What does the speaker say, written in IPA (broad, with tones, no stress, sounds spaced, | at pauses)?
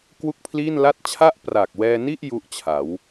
k w u˥˩ k̚ pʰ l iː˥˩ n l a˥˩ t̚ t͡ɕʰ a˥˩ ʔ p r a˨˩ k̚ w ɛː˧ n i˥˩ ʔ j u˥˩ ʔ t͡ɕʰ a˩˦ w